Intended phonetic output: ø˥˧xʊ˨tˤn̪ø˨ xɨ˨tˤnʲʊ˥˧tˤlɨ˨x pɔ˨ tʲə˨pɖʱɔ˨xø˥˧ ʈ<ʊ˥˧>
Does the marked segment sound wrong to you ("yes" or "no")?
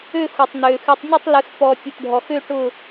no